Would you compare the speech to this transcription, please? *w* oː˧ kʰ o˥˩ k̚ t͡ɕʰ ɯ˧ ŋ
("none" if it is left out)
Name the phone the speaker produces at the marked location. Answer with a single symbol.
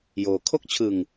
j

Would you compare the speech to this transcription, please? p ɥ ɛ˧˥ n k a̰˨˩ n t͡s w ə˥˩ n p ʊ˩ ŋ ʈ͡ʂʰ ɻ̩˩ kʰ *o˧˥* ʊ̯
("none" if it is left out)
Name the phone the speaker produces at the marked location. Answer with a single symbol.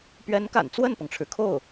o˥˩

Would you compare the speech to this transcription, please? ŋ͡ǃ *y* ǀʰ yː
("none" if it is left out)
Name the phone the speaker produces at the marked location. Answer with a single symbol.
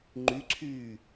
y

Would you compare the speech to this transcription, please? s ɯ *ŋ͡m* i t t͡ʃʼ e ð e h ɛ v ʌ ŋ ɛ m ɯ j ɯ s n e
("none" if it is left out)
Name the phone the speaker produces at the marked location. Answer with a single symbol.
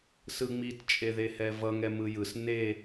ŋ͡m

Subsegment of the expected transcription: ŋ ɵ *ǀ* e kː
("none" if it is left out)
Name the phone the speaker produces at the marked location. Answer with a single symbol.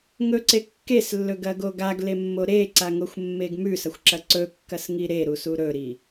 ǀ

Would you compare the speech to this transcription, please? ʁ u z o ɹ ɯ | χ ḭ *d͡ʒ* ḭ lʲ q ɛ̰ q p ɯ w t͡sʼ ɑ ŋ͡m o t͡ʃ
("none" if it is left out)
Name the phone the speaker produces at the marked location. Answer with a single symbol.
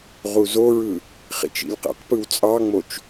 t͡ʃ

